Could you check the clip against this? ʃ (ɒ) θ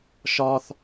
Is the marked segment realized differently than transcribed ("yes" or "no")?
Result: no